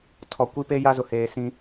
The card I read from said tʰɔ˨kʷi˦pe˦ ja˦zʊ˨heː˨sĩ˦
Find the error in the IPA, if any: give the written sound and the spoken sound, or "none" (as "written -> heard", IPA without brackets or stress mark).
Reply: none